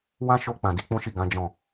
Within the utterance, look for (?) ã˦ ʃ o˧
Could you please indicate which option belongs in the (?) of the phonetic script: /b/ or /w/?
w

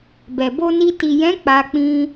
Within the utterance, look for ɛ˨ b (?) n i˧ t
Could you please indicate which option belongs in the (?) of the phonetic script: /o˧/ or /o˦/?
o˧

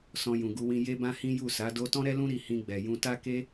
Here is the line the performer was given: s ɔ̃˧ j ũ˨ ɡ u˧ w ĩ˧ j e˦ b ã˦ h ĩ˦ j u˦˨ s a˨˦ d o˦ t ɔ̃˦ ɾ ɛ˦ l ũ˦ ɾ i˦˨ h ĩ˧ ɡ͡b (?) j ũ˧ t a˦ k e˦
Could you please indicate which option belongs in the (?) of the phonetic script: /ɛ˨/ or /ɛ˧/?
ɛ˨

